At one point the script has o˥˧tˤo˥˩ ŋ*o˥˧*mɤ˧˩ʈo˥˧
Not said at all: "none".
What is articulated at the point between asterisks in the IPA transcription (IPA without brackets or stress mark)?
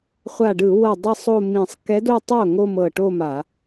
o˥˧